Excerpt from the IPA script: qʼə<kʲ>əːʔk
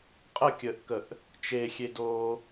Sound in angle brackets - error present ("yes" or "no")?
no